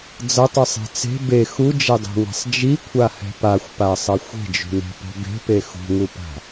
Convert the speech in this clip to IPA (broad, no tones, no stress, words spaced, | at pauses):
d͡zʌtˤɯsˤe̤ t͡se̤ be xud͡ʒɛdˤṳŋɛ̤sˤ d͡ʒikʷʰahɛ̤ paxʷpasˤʌ xʷe̤d͡ʒṳne̤po̤ be̤pe xṳŋupa̤